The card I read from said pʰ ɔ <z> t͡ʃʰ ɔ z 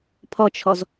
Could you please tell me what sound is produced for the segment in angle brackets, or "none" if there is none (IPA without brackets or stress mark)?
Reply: none